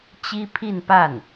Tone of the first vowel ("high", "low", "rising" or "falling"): high